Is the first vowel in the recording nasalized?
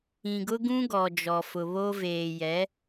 yes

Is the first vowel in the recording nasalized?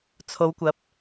no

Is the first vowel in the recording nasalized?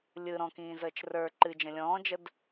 no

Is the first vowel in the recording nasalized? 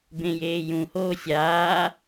yes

